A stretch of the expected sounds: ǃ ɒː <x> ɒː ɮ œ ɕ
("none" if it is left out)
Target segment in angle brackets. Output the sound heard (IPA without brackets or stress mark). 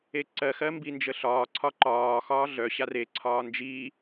x